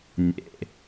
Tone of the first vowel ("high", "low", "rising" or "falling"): low